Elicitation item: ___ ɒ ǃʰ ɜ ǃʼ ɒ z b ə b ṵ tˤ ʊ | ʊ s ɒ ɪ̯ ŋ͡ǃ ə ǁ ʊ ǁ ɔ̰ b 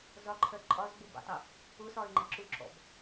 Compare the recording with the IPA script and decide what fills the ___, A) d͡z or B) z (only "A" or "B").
B